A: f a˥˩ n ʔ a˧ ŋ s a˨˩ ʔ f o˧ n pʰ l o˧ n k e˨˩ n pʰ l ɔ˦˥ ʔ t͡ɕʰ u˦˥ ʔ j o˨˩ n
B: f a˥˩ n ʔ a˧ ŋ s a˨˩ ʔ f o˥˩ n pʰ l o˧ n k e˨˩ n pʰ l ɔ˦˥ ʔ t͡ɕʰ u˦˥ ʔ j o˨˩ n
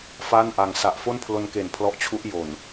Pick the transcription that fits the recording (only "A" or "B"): B